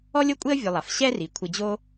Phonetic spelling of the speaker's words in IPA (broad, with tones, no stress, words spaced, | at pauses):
ɔ˦lʲo˦kʷʼe˦ə̯ vʲʊ˨lˠa˩f ɕɛ˦ri˩ kʷʰɪ˨ d͡ʑo˥